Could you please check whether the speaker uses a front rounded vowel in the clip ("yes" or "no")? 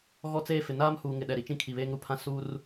no